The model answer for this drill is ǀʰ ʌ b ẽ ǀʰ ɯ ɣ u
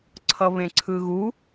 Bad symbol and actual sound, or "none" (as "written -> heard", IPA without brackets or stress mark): b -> β